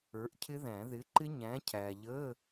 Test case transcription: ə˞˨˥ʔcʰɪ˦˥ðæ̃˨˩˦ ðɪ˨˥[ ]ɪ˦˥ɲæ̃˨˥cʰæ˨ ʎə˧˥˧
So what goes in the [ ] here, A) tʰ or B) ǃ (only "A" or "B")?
B